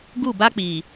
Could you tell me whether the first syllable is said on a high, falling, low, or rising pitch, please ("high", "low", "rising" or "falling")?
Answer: falling